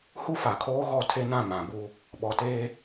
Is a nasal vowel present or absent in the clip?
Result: present